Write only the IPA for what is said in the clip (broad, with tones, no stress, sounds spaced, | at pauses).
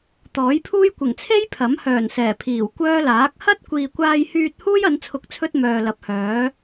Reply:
t̪ ɔː˨˥ j pʰ uː˥ j kʷ ɪ˨˩ ŋ t͡sʰ e˥ j pʰ ɐ˨˥ m h œː˨˩ n s ɛː˨˩ pʰ iː˨˩ w kʷ œː˥ l aː˨˥ k̚ h ɐ˥ t̚ kʷ iː˨ kʷ aː˧ j h yː˧ t̚ h uː˥ j ɐ˨˧ n t͡sʰ ʊ˨˥ k̚ t͡sʰ ɵ˧ t̚ m œː˨ l ɐ˨˥ p̚ h œː˨˥